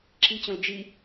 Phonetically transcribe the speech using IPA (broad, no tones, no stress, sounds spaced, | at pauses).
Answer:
ǁ i t͡ɕ õ l d͡ʒ i